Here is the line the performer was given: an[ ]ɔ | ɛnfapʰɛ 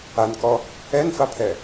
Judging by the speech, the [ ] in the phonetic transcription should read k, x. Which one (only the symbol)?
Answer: k